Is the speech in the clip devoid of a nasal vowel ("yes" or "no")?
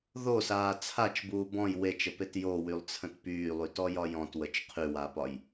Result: no